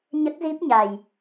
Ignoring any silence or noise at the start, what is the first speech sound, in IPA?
ɲ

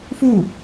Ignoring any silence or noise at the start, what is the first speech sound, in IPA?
f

